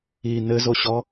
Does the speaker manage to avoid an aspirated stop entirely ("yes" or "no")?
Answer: yes